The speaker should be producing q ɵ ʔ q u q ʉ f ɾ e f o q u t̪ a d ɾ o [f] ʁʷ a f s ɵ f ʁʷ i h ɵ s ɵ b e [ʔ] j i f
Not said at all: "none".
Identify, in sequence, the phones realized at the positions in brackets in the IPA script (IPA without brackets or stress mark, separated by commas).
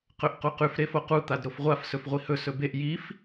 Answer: f, ʔ